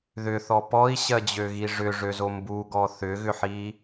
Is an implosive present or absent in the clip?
absent